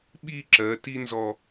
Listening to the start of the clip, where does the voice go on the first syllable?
falling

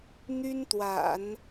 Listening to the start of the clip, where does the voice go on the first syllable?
high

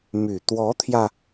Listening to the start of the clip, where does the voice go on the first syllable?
low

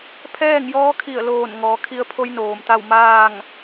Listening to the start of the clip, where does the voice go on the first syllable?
falling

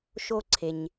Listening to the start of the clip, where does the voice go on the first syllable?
high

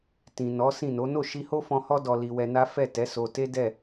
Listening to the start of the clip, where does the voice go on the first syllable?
low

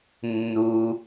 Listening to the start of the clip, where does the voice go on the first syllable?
low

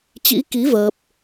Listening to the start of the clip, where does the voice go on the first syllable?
rising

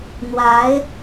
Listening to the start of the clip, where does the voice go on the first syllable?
rising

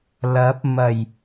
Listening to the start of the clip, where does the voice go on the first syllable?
rising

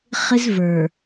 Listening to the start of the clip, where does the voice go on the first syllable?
high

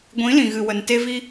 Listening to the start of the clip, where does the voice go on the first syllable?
rising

